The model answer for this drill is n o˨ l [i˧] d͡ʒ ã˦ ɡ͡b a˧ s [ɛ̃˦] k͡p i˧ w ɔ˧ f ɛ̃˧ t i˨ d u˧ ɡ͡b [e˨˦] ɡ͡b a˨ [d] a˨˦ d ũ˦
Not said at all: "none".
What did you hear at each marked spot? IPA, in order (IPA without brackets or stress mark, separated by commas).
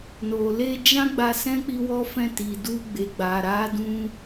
e˧, ɛ̃˦, e˨, ɾ